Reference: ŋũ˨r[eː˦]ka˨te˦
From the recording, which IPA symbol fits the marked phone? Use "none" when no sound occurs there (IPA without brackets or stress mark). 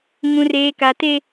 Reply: eː˨